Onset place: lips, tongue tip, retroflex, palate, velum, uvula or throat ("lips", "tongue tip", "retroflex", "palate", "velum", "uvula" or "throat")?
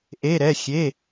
throat